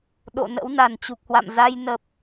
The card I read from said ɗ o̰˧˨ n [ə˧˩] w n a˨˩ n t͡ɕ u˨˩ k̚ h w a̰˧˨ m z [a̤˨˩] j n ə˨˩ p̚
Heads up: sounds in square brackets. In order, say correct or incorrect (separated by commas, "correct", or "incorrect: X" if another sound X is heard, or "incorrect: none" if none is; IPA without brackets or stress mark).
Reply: incorrect: ə̰˧˥, incorrect: a˧